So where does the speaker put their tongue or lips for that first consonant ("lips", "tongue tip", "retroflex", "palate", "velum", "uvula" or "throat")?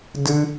tongue tip